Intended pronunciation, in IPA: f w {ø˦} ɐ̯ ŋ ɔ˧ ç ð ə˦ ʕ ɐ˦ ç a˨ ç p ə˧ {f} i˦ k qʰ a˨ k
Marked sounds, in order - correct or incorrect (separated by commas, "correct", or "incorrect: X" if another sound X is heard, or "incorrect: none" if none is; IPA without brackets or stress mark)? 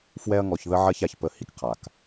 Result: incorrect: ɛ˦, incorrect: h